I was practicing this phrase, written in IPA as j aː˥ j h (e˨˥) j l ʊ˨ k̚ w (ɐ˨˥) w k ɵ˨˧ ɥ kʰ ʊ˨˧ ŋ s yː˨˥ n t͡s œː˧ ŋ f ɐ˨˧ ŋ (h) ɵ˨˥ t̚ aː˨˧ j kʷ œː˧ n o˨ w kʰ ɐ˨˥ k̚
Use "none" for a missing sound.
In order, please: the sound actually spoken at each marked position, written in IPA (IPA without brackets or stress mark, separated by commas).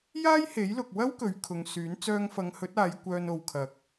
e˨˥, ɐ˥, h